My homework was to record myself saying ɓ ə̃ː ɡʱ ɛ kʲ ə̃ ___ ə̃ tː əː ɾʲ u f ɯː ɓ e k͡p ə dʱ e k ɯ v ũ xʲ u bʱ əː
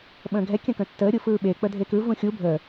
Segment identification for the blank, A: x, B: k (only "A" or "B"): B